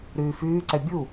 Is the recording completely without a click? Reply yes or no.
no